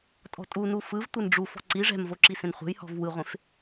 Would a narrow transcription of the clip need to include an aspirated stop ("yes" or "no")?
no